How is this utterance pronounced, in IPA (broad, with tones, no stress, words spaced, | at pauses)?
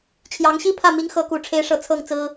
t͡ɕʰjɑ˧˥ŋɕi˥pʰä˥˩ mi˧˥ŋxɤ˧˥ ku˨˩ʈ͡ʂʰe˧˥ɪ̯ʂɤ˨˩ t͡sʰɤ˥˩ŋt͡sɹ̩˥